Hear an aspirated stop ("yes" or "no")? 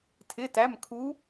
yes